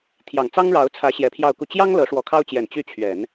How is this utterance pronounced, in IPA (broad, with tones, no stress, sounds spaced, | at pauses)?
t̪ʰ j ɑ˨˩ ŋ t͡s ɑ˥ ŋ ɻ ɑ˧˥ ʊ̯ t͡sʰ ä˧˥ ɕ j ɛ˧˥ pʰ j ɑ˥˧ ʊ̯ k u˥˩ t͡ɕ j ɑ˥ ŋ l ɤ˧˥ ʂ w ɔ˧˥ kʰ ɑ˥ ʊ̯ t͡ɕ j ɛ˨˩ n t͡ɕ y˥˩ t͡ɕʰ ɥ ɛ˨˩˦ n